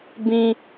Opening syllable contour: low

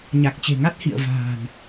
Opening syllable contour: low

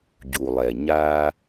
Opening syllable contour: low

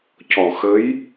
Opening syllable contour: low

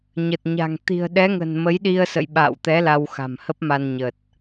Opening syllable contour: low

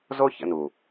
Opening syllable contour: high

